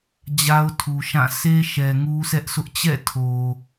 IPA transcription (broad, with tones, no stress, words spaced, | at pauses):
d͡ʑa˦ʊ̯tʰu˨ʃã˦˨ se˦ʃɛ˨ ŋu˦sɛ˦ʔsʰʊ˦ʔ t͡ɕɛ̰˦˨ tʰo˨